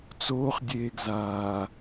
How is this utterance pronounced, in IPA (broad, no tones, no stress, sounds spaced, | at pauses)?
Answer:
t͡s oː χ dʲ eː ɡ z aː